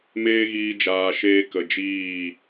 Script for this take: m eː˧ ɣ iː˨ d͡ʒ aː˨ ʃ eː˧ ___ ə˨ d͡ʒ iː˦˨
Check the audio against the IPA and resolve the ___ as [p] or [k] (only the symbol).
k